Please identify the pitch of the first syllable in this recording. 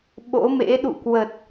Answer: rising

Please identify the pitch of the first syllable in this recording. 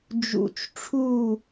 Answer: low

